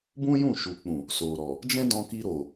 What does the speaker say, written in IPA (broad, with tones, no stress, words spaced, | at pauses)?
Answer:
bũ˦jũ˦˨ʃu˨k͡pũ˨ | so˨ɾɔ˨ | d͡ʒɛ̃˦dɔ̃˧ki˧ ɾo˨